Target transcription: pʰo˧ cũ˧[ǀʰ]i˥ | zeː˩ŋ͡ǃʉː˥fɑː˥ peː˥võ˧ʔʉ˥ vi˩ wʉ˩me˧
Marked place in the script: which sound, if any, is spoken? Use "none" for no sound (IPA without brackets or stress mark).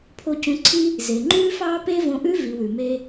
ǀʰ